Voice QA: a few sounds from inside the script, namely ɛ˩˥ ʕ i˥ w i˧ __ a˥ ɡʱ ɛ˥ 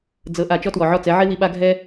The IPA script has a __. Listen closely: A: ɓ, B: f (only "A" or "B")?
A